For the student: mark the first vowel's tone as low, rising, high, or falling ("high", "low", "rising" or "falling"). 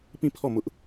falling